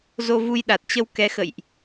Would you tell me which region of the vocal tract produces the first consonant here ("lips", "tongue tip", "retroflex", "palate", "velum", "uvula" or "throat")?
tongue tip